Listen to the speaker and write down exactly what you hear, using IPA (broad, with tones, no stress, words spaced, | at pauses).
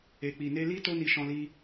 e˨k͡pi˨ ne˧li˦ to˦ni˧ʃɔ̃˧li˧